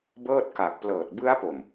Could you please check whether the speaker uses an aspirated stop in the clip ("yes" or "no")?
no